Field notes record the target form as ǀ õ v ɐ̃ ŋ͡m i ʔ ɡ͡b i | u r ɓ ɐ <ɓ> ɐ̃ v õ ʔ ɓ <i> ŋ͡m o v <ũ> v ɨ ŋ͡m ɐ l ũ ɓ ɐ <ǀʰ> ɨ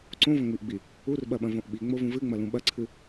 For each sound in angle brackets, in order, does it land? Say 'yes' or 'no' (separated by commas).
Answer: yes, yes, yes, yes